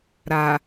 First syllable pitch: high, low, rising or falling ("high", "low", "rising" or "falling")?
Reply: low